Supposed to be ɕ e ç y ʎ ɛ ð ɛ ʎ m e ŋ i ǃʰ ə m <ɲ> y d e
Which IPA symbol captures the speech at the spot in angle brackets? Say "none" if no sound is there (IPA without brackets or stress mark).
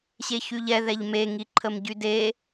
ɟ